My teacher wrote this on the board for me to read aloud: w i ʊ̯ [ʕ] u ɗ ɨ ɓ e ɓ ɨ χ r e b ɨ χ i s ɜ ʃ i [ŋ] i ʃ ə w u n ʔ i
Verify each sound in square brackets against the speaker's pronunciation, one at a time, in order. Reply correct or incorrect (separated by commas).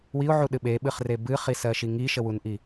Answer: correct, correct